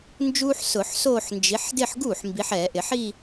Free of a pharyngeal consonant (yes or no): no